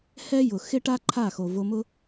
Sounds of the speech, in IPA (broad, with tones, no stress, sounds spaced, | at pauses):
h ɛ˦ j ʊ˨ x ɪ˦ ʈ a˦ ǃʰ a˦˨ x o˨ v o˧ m ʊ˦